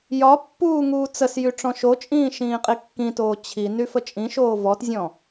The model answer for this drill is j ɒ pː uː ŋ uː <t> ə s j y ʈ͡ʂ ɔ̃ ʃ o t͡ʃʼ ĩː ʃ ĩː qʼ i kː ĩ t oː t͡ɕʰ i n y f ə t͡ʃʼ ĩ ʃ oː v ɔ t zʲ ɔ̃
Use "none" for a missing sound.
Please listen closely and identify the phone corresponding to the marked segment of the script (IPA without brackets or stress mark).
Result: t͡s